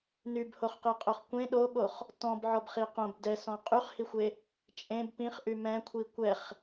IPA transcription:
n y b h o χ q e qʼ o χ kʷ ẽ ɗ o ɠ o χ | t ɔ̃ b ʕ ɔ b χ i q õ b d ɛ s ɔ̃ qʼ y χ h i xʷ e | t͡ʃʼ ẽ b p ĩ χ ʔ y m ɛ̃ kʷʰ i kʷ ɛ χ

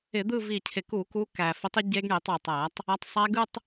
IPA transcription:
ɪ˧˩˧ d̪ ɯ˥˧ v i˧˩ cʰ ɪ˧˩ k u˧˩˧ k u˨˦ k æ˩ f ɪ˨˦ tˤ ɪ˨˦ ɟ e˦˥ ɡ ɳ i˧˩˧ tˤ w ɪ˩ tˤ æ˧˩˧ tˤ | æ˨˦ tˤ sˤ æ˦˥ ɡ ɯ˥˧ tˤ

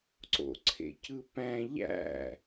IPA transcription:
ǀ o̰ ǀʰ ḛ c ɯ p æ̃ ʎ æ̰

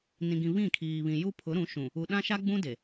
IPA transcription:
n ĩ˨ ɡ ĩ˨ β ĩ˦˨ kʰ iː˨ β ĩ˨ j u˦ pʰ ʊ˨˦ ɾ ũ˨˦ ʃ ũ˨ | u˨ ɗ ã˦ ʃ a˦ ɡ͡b ũ˦ d e˨

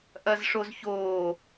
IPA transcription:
ʔ ɐ z ʂ o z ç oː

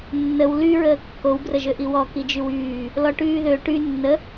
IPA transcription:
nː ə w l y ɹ əː kː o w b r ə ʒ ø ʔ i w ɔ k i d͡ʒ y w yː | l ɔ ʈ yː ð ø ʈ y nː ə

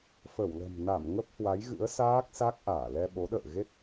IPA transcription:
f ə˧˩ w l ə̤˨˩ m n a˧˩ m ŋ ə˦˥ p̚ h w a˨˦ j ɣ ɨ̰˧˥ ə̯ s aː˦˥ k̚ s a˦˥ k̚ ʔ aː˧˩ l ɛ˧ ɓ o˨˦ ɗ ə̰ː˧˨ ɣ e˦˥ t̚

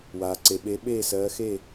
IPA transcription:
w aː˩ ǀ e˩ ɓ e˨˦ ɓ eː˥˨ s ɜː˨˦ x e˥˨

